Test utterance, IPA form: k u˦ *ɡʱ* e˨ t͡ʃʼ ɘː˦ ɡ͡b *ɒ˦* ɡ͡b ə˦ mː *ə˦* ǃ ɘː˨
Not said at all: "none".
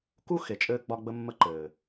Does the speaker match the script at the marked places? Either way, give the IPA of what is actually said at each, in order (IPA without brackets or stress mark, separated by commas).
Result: x, ɒ˦, ə˦